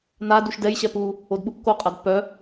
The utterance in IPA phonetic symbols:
n a d u ʃ d ɛ j ɕ ɛ p u | o d ɓ u kː o qʼ a d pː œ

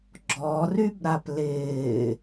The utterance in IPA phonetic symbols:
ɡ͡ǁ ɔ r y b ɾ a p l ɪː

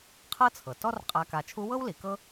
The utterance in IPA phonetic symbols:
qʰ ɤ˥ t͡sʰ ɤ˩ t ɔ˥ r qʼ a˧ k a˧ t͡ʃʰ u˧˥ w ɤ˥ w l i˩˧ k ɤ˥

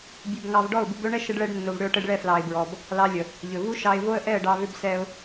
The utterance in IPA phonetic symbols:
bʲ ɵ˧ b ŋ ɑ˧ v ɖ ɔ˦˨ ʊ̯ b u˧ b ɵ˦ ɳ ɛ˦ ʃ ə˦ ɖ ɭ ɛ˦ ɖ nː o˧ v ɽ ʏ˧ ʊ̯ ʈ ə˧ ɖ ɭ ɛ˧ f l ɑ˨ ɪ̯ b ɹ ɔ˨ b | l ɑ˧ lʲ ə˨ | ʎ ɵ˨ v u˦ ʃ ɑ˧ ɪ̯ v o˦ ə̯ ʔ ɛ˦˨ ə̯ ɖ ɑ˧ v ʏ˧ b s ɛ˧ ʊ̯

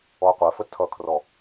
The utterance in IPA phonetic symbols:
ɔ qʷ ɜ f ə tʰ ʌ kʰ r ɔ

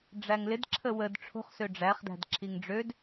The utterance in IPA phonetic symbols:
ɖ͡ʐ æ ŋ l ɪ d ǁʰ ə w ə d ʈ͡ʂʰ o̤ χ s ø ɖ͡ʐ æ χ d æ̤ d ǁʰ i ŋ ɖ͡ʐ ø d

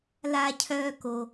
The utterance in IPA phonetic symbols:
l a˨ cʰ œː˨ k o˩

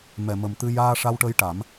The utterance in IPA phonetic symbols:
m ɛ˨˩ m ə˨˩ m t̪ ɨ˧ j aː˧ ʂ a˧ w ʈ ə˧ j ʈ a˨˩˦ m

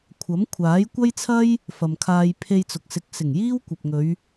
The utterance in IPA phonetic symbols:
kʷʰ ɐ˨˥ m kʷʰ aː˨˥ j kʷ ɐ˥ j t͡sʰ ɐ˥ j | f ɐ˨ m kʰ aː˧ j pʰ e˧ j t͡s ʊ˨ k̚ s ɪ˨ k̚ s ɪ˨˩ ŋ j iː˥ w kʷ ɐ˨ p̚ ŋ ɵ˨˧ ɥ

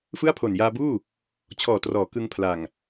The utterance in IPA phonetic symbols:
f ɯ˥˩ a̯ pʰ o˨˩ n j aː˧ b uː˥˩ | t͡ɕʰ ɔː˨˩ t r ɔː˩˦ k ɯ˧ ŋ pʰ l a˨˩ ŋ

